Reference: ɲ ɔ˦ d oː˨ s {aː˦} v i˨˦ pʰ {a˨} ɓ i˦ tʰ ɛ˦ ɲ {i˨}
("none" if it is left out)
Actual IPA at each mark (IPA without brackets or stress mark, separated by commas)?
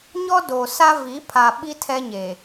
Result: a˦, a˨, e˨